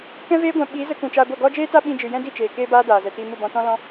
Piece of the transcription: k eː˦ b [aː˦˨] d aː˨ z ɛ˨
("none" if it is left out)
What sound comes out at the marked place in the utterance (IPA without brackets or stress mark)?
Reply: aː˦